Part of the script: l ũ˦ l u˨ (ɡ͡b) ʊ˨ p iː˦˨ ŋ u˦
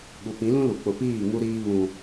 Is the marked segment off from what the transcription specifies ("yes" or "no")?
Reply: yes